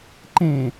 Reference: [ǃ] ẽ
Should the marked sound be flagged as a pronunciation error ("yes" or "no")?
no